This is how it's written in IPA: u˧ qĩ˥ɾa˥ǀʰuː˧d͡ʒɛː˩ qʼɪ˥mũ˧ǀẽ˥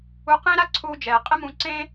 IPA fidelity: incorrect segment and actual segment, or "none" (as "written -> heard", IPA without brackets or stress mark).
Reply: ĩ˥ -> ẽ˥